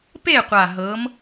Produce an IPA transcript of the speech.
p e˥˨ qʷ a˨˩ ɦ ɤ˨˦ m

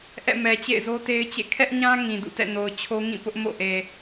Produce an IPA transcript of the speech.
ʔ ɛ̰˦˨ m ɛ˨ t͡ɕ ḛ˦˨ ɪ̯ z o˦ t e˦ ɪ̯ t͡ɕ ḛ˦˨ kʰ ɛ˦ ʔ ɲ ã˦ ŋ ĩ˨ d ṵ˦˨ t ɛ̰˦˨ n o˨ ʊ̯ t͡ɕʰ o˦ ŋ ĩ˦˨ p ʊ˦ ʔ m o̰˦˨ ʔ e˨

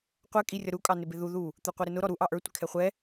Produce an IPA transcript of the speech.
qʷ ɛ kʼ i rʲ ʌ ɾ u kʼ ɑ n ɪ b ɪ ð u ð u | t̪ ə˞ qʷ ɛ ɾ ɪ n ʊ ɾ ɔ ɾ u ʔ ɑ ʔ ə˞ tʷ ɪ kʰ ɛ χʷ ɛ

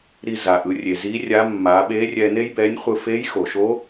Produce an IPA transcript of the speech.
ɾ i˧ z a˩ ʔ ɯ˩˧ rʲ e˩ z i˧˥ rʲ a˧˥ mː a˩˧ ɓ e˧˥ rʲ ɛ˧ n e˥ j b ɛ˧˥ nʲ χʷ ɯ˧ f e˧˥ j x o˩ ʃ o˧˥

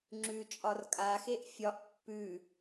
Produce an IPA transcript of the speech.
ŋ͡ǁ ʉ t͡ʃʼ ɒ r kʼ a x e ʔ fʲ ɒ ʔ pː ʉ

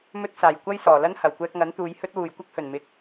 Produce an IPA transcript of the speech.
m ɵ˥ t̚ s aː˨ j kʷ ɐ˥ j s ɔː˨˩ l ɐ˥ n h ɐ˨˩ w kʷ ɛː˧ k̚ ŋ ɐ˨˥ n t̪ uː˨˧ j h ɵ˥ t̚ w uː˨˩ j kʷ ɐ˥ k̚ h ɵ˨˩ n m ɪ˨˥ k̚

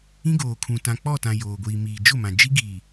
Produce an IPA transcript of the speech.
ĩ˦ ɡ oː˨ kʰ ũ˨ t ã˨ k͡p ɔ˦˨ t ã˨ j oː˨ ɡʷ iː˨ m iː˨ d͡ʒ ʊ˦˨ m ã˨ d͡ʒ i˦ ɡ iː˨

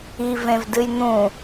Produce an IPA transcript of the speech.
i v ẽ v d ɨ j n̪ ũ

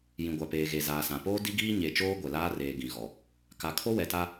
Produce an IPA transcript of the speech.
j ĩ˨ ɡʷ a˨ p eː˨ ɣ e˨ z aː˨ s ã˨ p oː˦ d i˦ ɡ iː˦ ɲ e˨ t͡ʃ oː˦ ɡʷ ɛ˨ l aː˦ r eː˨ ɡ ĩ˨ ɣ ɔ˨ | k a˨ kʰ o˦ w ɛ˨ t a˦

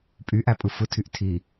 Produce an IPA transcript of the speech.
pʼ y ʔ æ pʼ ɯ f ɯ tʰ y ʔ tʰ i

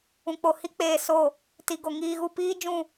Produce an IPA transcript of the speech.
ũ˨ k͡p o˨ h i˦ k͡p eː˨ s o˦˨ | t i˨ ɡ o˨ ŋ iː˨ ɣ u˨ p iː˦ d͡ʒ ũ˦˨

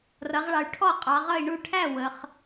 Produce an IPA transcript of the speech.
r ʌ˩˧ ʁ ɭ ɑ˩˧ y̯ ʈʰ ɔ˥˨ qʼ ɑ˩˧ ʁ ʌ˥˨ i̯ ɳ u˥˨ ʈʰ æ˥˨ w ə˩˧ χ

